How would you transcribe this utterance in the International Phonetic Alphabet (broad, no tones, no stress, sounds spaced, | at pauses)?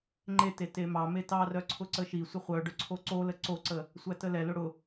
ŋ͡ǃ e t e t e m ɑ m e t ɑ r œ ǀʰ ʊ ǀ ə ʃ i sʷ ə χʷ œ ɖ œ ǀʰ o ǀ o l ə ǀ o ǀ ə | sʷ æ t ə l ɛ l ʊ ɽ ʊ